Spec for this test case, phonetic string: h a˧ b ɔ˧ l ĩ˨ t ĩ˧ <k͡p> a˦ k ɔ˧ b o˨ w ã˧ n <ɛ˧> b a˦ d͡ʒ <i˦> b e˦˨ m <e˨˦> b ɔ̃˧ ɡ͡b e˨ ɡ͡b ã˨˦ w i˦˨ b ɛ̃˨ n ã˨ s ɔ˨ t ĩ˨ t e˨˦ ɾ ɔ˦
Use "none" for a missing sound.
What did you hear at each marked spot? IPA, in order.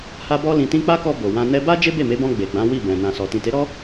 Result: k͡p, ɛ˧, e˦, e˨˦

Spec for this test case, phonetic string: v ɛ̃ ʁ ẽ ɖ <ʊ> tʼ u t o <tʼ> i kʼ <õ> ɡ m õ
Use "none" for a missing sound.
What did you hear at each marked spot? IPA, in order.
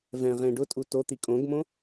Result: ʊ, t̪, õ

